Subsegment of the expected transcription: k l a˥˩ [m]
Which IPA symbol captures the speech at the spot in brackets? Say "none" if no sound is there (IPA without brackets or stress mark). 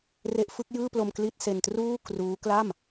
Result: m